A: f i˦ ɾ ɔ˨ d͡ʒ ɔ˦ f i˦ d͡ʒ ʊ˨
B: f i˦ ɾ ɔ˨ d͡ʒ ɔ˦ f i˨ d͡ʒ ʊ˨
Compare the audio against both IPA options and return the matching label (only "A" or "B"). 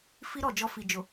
B